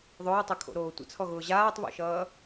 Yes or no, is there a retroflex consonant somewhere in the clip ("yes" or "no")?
no